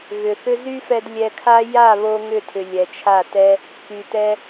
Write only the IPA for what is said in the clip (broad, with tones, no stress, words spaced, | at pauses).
ɣʏ˨θʏ˦ zy˦fɛ˧d lʲɛ˧kʰa˦ ja˦˨βo˧ ŋʏ˦˨tʰʏ˨ lʲɛ˨t͡ʃʰa˦˨ tɛ˦ | ky˨tɛ˧